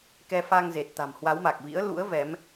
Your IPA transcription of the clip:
kɛ˧fa˧ŋze˨˩t̚ t̪a̤˨˩mhwa˨˦wma˨˩k̚vḭ˧˥ə̯ lṵ˧˥ə̯vɛ˨˦m

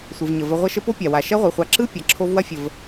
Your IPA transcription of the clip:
sʷɯ˩vɲə˩ və˨ ʁʷɐ˦ʃə˦po˥pʲa˩ wa˩ʃɐ˦ʁʷɯ˩χʷa˨ ǁɯ˦ pʲa˩ǁʰo˦vwɐ˥fʲə˨v

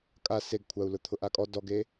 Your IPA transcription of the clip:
kʼa seɡkʷʰau̯lʊ t̪ʰʊʔakʼɔ dɔɡe

